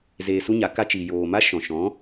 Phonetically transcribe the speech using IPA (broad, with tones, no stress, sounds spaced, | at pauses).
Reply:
z eː˧ s u˦ ɲ a˨˦ k a˧ t͡ʃ i˨ j oː˨ m a˦ ʃ ɔ̃˨ ʃ ɔ̃˨˦